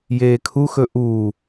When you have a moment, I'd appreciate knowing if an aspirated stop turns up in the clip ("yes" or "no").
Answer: yes